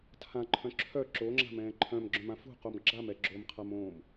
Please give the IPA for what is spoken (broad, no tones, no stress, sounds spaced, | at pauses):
tʰ ã ǃʰ œ̃ ǁʰ œ ǁ o ŋ͡ǁ a̤ m ɛ̃ː ǃʰ œ̃ m ɡ͡ǁ œ̃ m ã f ṳ q o m ɡ͡ǁ a m ɛ ɡ͡ǁ o m qʰ a m õː m